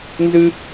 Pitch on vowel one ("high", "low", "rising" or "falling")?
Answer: high